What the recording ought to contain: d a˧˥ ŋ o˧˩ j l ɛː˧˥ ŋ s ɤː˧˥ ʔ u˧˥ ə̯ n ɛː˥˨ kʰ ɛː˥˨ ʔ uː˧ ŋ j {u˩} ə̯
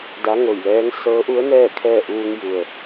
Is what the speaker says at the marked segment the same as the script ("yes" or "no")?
yes